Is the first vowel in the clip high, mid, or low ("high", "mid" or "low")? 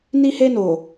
high